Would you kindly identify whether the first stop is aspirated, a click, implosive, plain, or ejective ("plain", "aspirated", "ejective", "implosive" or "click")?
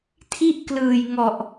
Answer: aspirated